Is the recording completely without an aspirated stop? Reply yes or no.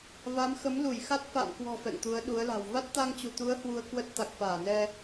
yes